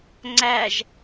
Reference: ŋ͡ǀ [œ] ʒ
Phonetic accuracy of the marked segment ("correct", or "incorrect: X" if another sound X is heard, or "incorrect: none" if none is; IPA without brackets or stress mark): incorrect: æ